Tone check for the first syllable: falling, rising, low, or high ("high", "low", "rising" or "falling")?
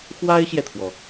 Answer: high